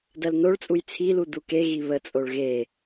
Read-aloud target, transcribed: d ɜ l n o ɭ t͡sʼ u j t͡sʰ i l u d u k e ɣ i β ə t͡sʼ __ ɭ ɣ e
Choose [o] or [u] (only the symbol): o